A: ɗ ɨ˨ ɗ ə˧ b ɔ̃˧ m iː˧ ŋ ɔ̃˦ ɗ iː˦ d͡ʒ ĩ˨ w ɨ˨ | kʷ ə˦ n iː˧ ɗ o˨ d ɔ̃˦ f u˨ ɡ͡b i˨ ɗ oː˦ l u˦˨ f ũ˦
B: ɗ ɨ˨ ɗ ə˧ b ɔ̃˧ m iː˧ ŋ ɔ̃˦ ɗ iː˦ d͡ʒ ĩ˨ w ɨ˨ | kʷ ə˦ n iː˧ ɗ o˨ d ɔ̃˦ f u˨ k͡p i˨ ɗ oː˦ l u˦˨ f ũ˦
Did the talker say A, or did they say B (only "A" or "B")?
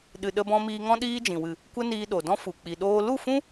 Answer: B